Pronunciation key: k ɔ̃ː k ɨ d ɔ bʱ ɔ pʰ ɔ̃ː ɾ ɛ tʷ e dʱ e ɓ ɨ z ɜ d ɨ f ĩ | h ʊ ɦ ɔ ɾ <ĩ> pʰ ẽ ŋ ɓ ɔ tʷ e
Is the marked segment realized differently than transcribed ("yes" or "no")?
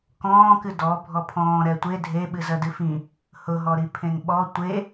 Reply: yes